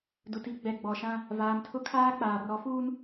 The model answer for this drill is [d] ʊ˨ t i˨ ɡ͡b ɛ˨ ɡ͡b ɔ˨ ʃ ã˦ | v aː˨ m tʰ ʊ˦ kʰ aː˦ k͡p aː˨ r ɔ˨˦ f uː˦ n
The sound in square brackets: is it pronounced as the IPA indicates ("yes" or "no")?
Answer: yes